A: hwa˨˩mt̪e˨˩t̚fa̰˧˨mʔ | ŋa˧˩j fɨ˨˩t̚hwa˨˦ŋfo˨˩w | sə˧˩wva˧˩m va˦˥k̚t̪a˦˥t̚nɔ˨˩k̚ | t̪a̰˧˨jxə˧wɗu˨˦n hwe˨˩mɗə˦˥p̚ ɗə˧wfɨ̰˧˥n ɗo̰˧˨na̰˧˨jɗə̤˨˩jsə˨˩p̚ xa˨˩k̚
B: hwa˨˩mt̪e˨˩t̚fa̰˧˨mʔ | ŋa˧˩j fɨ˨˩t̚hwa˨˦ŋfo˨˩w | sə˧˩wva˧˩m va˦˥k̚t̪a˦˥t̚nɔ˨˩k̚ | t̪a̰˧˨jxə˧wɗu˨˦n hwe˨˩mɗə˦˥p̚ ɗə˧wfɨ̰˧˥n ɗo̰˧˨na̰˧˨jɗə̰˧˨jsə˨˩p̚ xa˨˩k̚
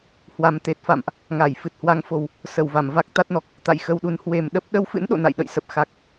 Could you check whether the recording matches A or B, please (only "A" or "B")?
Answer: B